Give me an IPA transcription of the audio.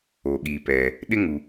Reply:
o˨ ɠ iː˨ p ɛː˨ | ɗ ɪ˦ ŋ u˨

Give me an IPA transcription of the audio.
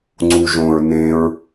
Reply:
ŋ͡ǀ u ʒ õ ɹ n ẽ ɹ

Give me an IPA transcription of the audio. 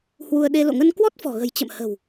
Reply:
h w u˧ ə̯ ɗ e˧ l o̰˧˨ ŋ ə˧ n k w ɔ˦˥ t̚ f ɔ̤˨˩ ɣ ə̤˨˩ j t͡ɕ ə̰˧˨ m h ə̤˨˩ w

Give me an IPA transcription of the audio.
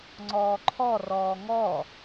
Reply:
ŋ͡ǀ ɔː ǃʰ ɔ r ɔː ŋ ɔ

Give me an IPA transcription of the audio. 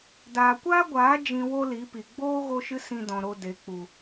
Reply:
d aː˨ kʷ aː˦ ɡʷ aː˨˦ d͡ʒ ĩ˧ w o˦ l i˨˦ p i˨ ɡ͡b oː˦ ɣ o˦ ʃ ɨ˦ s ĩ˧ d ɔ̃˨ ɾ o˨ d e˨ k͡p u˨

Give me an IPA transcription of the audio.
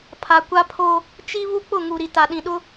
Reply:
pʰ a˨ kʷ a˦ pʰ o˦ | t͡ʃ i˦ β u˦ k͡p ʊ˦˨ ŋ u˨ ɾ i˨ t a˨ ɗ ĩ˨ ɗ ʊ˦

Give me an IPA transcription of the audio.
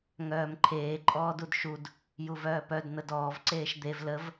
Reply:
ŋ œː m ǃʰ eː ǃʼ ɔː d u d ʃ u d | j u v œː p œ d n̪ ə d ɔː v ǀ eː ʃ d̪ e v l ə v

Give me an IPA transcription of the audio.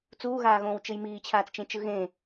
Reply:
t͡s uː ɣ aː ɣ õː w t͡ʃ ɯ j m iː t͡ɕʰ aː t͡s t͡ʃ ẽ t͡ʃ ɯ ɣ ẽ

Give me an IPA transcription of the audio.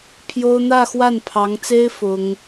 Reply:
pʰ j o˥ ʊ̯ n̪ ä˥˧ x w a˥˩ n pʰ ɑ˧˥ ŋ t͡s e˥ ɪ̯ f ʊ˥ ŋ

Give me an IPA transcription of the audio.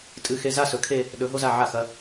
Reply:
tʼ ɨ˧˩ x e˧ z a˥ s ɵ˩˧ kʰ e˥˧ | ɗ ɵ˩˧ ɦ o˧ z a˧˩ ʕ a˧˩ x ɐ˩˧

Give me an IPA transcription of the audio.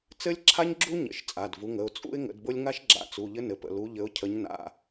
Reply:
t͡s ɘ˥ lʲ ǁʰ a˥ ɲ ɡ͡ǁ u˥ ɲ ə̰˩˧˩ ʃ t͡sʼ a˩˧˩ d v u˨˦ ŋ ə˩˧˩ ʊ̯ t͡sʼ ṵ˥ ɪ̯ ŋ ə̰˨˦ d b ʊ˥ lʲ ŋ a˥ ʃ ɡ͡ǁ a̰˨˦ t͡s u˩˧˩ ʎ ɘ˥ n ɘ˩˧˩ p ə̰˩˧˩ l u˨˦ ʎ ɘ˨˦ ʊ̯ cʰ ə˨˦ ɲ n a̰˩˧˩

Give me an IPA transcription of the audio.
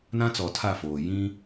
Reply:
n ã˦ t͡s ɔ˨ tʰ a˦˨ f oː˨ j ĩ˦

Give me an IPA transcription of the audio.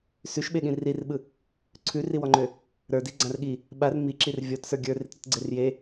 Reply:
s ʉ ʃ ɓ e ɠ ĩ r i r ɓ ɯ | ǀʰ ʉ r i w ɔ ŋ͡ǃ ø | ɾ ə˞ d i ɡ͡ǀ ã r ɠ i | ɓ a r m i ǁ i r vʲ ɔ t s ə˞ ɡʲ ə˞ r i t ɾ ʉ t ɡ͡ǀ e r j e

